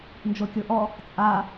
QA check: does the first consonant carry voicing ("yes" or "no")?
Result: yes